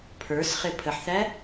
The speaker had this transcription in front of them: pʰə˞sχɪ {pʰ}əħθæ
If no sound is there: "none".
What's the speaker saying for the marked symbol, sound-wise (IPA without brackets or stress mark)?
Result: pʰ